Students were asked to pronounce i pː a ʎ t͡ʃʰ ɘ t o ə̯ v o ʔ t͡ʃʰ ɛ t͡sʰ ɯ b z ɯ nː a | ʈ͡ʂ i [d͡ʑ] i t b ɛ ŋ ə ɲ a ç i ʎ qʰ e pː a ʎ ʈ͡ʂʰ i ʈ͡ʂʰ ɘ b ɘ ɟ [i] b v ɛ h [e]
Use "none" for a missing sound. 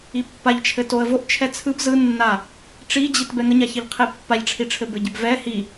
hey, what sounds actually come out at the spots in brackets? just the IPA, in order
d͡ʑ, ɪ, i

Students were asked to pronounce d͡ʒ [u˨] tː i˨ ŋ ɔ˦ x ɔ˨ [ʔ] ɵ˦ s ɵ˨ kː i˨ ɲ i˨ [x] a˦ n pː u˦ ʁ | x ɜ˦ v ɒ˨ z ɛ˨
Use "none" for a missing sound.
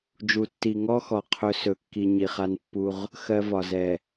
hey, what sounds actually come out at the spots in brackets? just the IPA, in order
u˨, qʰ, χ

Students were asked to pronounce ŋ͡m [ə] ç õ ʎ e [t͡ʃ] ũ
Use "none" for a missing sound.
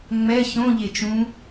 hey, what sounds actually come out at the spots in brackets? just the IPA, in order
ɛ, t͡ʃ

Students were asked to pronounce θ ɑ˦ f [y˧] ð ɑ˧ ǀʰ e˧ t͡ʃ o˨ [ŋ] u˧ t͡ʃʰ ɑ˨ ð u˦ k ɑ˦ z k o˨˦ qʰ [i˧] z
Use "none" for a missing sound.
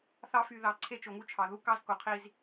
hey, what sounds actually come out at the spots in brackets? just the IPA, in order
y˧, ŋ, i˧

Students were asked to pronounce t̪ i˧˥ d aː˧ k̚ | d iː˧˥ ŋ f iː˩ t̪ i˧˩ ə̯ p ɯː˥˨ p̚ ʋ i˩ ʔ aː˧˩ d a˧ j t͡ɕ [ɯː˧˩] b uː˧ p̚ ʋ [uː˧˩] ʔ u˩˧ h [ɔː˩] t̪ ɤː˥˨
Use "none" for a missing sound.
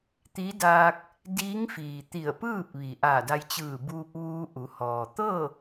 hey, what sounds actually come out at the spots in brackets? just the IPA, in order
ɯː˧˩, uː˧, ɔː˩

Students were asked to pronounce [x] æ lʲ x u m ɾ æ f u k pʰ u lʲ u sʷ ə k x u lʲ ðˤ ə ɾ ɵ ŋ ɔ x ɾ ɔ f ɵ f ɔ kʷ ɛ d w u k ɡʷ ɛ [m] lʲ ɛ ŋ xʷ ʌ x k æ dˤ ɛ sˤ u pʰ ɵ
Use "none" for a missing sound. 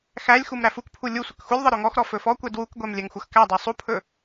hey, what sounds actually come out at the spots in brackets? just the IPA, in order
x, m

